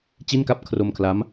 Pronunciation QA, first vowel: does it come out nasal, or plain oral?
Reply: oral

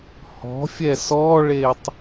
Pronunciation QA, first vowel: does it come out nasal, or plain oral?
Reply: oral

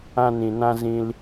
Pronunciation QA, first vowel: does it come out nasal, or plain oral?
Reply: nasal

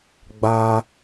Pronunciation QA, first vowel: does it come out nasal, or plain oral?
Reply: oral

